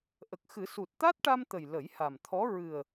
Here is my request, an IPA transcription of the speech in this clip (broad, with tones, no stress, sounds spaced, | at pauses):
ʔ ə˨˩ k̚ x ɨ˨˩˦ s u˨˩ t̚ t̪ a˦˥ t̚ ʈ a˧ m t̪ ə˨˩ j l ə˨˩˦ j h a˨˩ m t̪ʰ ɔ˧˥ ɹ ɨ˨˩ ə̯